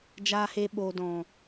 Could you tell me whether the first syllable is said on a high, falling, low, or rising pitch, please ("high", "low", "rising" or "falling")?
low